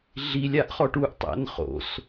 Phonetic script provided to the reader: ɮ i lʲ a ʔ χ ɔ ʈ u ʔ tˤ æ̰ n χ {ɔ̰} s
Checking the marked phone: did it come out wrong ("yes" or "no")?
yes